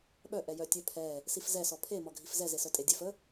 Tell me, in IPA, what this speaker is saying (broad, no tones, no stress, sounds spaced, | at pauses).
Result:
ɓ œ ʔ ɛ j œ tʲ œ pʰ ɛ | s i f z ɛ s ɔ pʰ e m ɔ ɡʱ i f z ɛ z e s œ tʼ e dʲ ɛ f ə